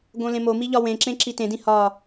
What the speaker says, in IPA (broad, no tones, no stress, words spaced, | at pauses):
ɡõlẽmomi ʎɒwẽǁẽ ǁitẽdĩ hɒ